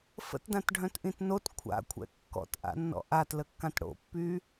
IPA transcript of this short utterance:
fə̰tdãtɖʱœ̃tʔĩt not kʷʰa̰kʷʰɛ̰ kːɔ̰tʔa̰nːɔ̰ ʔatləkːãt ɽo̰pːy

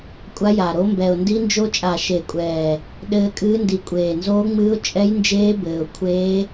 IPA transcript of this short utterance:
kʷʼa˧˥ja˨˩ɾo˧˥ mbɛ˨˩ʊ̯ndi˧˥nd͡ʒo˧˥ t͡ʃʼa˨˩ʃe˨˩kʷʼɛː˨˩ | ɗɘː˧˥kʼɨː˧˥ndi˨˩ kʷʼeː˨˩nzoː˧˥ŋ͡mɨː˧˥ʊ̯ t͡ʃʼɛ˧˥jnd͡ʒeː˧˥ bɘː˨˩ʊ̯ kʷʰeː˧˥

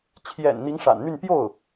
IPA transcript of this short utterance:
t͡ɕʰjɛ̰˨˩n n̪i˧˥ŋʂa̰˨˩nn̪y˥˧n pjo˥˩ʊ̯

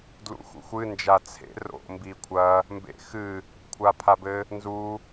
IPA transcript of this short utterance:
dlṵxṵxʷɨ nd͡ʒat͡sʰḛ ro̰mbi kʷʰɐ | mbḛxɨ | kʷʰapʰabɘ | nzu

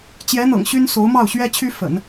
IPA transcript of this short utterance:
t͡ɕjɛ˧˥n̪ɤ̰˨˩ŋ ɕy˥nso˧˥ʊ̯mɑ˥˩ʊ̯ ɕɥɛ˥t͡ɕʰy˥ fə̰˨˩˦n

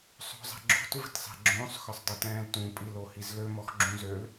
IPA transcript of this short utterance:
sˤo̤zˤɛ̤ɡ͡ǁo̤t və̤tsˤɛ̤ɡ͡ǁõsˤ xœsˤdˤitɛ̃ːltũ pʼilohizlø mɔxɡ͡ǁũzøl

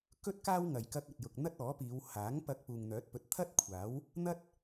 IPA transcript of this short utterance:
kɵ˥t̚ kaː˥wŋɐ˨j kɐ˧k̚ɐ˨t̚jʊ˨k̚ n̪ɐ˥t̚ ɔː˨˥piː˨˧w haː˨˥ŋ pɐ˧k̚puː˨ŋn̪œː˨˥t̚pɵ˨˥t̚ t̪ʰɐ˥t̚kʷʰaː˨˥w | n̪ɐ˥t̚

